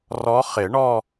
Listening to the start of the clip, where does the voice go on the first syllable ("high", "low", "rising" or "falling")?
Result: rising